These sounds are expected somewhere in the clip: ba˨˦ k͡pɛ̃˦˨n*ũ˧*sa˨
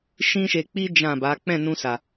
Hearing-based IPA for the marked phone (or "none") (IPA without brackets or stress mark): ũ˧